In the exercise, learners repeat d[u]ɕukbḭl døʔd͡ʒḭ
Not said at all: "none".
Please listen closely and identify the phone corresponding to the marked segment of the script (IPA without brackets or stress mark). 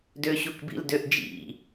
ø